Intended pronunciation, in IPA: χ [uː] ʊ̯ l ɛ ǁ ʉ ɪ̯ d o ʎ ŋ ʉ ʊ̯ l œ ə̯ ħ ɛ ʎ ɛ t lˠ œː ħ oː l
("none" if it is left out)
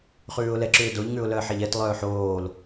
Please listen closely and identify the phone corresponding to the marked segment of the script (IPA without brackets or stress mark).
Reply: ʉː